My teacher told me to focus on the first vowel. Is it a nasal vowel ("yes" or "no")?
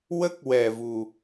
no